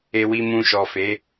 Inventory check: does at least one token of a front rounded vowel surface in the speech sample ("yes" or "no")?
no